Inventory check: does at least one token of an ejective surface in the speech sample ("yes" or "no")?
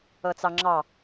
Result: no